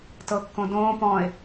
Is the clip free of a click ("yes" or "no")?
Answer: yes